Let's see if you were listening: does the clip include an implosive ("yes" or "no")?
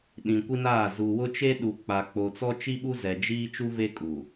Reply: yes